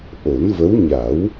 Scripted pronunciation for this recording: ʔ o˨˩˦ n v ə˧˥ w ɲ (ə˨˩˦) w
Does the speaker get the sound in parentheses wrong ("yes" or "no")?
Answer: yes